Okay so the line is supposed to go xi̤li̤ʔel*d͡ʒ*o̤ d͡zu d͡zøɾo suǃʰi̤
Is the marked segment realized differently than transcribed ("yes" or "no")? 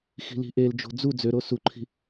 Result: no